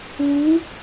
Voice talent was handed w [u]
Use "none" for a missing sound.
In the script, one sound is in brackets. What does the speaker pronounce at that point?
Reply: u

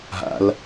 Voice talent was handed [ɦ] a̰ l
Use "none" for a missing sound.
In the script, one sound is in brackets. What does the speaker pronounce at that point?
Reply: ɦ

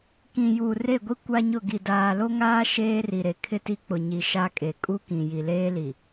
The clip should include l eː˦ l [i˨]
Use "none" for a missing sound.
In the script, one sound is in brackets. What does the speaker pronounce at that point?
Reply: i˨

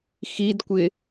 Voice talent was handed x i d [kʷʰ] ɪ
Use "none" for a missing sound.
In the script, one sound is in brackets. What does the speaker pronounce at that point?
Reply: kʷ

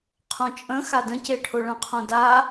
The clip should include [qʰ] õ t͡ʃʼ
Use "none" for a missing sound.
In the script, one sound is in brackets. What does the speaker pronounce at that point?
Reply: qʰ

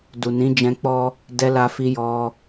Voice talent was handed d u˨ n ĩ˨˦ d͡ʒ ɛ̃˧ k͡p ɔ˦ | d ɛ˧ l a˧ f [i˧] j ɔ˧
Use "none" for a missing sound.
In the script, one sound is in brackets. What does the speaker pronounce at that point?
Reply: i˧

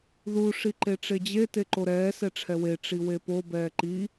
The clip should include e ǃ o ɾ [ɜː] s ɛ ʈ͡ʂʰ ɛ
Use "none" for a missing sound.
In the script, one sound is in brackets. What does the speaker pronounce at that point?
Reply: ɛː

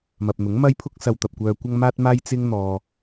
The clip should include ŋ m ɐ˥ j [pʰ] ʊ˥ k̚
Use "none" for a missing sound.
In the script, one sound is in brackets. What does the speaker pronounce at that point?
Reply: pʰ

